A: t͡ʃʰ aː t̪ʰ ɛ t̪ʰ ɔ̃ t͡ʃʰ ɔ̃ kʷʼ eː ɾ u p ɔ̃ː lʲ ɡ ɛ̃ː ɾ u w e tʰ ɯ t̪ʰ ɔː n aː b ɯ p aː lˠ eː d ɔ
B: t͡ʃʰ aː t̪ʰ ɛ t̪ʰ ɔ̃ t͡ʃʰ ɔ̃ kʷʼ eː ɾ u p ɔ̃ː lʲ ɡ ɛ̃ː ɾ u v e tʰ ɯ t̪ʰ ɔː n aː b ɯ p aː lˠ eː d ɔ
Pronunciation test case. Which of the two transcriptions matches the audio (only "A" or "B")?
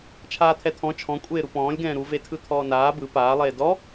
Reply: B